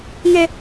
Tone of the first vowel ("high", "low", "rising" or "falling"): high